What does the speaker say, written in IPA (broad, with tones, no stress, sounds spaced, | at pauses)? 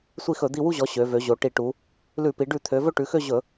sʷ i˦˨ x ɵ˧˩˧ d̪ i˦˨ w u˦˨ ʑ ɔ˩˧ ɕ ø˩˧ v ø˩˧ ʑ o˩˧ ʈ i˧˩˧ ʈ u˩˧ | l ʉ˧˩˧ p i˩˧ ɖ ʉ˧˩˧ t̪ʰ ø˩˧ v ɵ˦˨ ʈ ʉ˩˧ x ø˦˨ ʑ ɵ˧˩˧